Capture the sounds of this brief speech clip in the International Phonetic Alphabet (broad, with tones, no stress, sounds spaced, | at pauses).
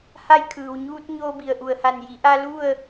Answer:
h a˧ j kʰ ɯː˩ w ɲ uː˧ t̚ ɲ oː˧ b i˩ ə̯ ʔ u˩ ə̯ h a˧˩ n j i˩˧ ʔ a˧ l u˥˨ ə̯